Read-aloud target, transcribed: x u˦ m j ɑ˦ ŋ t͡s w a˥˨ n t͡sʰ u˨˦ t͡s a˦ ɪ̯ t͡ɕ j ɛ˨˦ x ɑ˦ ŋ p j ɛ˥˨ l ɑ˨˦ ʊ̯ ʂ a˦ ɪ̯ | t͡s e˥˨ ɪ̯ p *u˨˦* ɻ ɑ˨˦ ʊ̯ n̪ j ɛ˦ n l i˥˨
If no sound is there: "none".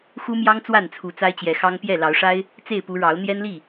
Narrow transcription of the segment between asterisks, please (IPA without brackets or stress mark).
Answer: u˨˦